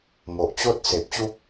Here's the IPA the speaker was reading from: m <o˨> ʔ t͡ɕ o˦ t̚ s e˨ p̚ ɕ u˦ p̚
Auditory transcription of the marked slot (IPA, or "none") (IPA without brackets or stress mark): o˨